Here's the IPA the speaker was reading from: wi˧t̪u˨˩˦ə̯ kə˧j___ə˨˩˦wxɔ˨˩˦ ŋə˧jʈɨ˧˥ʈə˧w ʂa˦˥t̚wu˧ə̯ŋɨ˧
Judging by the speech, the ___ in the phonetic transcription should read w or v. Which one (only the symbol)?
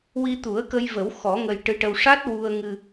v